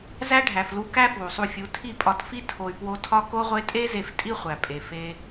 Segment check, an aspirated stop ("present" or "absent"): present